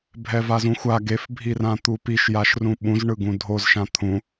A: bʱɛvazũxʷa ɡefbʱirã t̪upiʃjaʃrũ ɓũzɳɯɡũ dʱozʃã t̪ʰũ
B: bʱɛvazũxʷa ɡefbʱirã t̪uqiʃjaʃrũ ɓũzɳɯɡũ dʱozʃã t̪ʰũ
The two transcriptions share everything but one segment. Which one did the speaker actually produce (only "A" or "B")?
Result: A